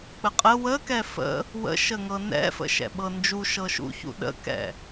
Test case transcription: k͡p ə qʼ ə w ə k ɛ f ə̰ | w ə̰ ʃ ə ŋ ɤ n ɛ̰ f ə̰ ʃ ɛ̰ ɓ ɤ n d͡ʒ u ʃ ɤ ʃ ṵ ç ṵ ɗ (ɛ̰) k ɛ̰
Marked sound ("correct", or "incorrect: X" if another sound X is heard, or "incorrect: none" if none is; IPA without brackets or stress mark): incorrect: ə̰